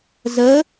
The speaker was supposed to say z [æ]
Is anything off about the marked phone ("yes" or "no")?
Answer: yes